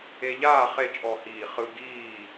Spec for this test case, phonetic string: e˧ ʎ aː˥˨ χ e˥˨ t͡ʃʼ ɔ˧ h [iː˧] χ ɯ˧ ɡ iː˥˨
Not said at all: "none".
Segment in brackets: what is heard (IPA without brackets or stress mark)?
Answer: iː˧˩